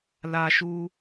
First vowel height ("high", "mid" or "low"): low